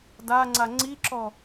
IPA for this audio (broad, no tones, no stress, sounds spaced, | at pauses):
d a ŋ͡ǀ a ŋ͡ǀ i ǁ ɔ